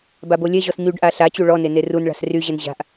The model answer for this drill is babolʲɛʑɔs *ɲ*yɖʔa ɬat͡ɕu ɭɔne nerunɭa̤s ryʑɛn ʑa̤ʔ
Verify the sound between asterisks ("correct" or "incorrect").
correct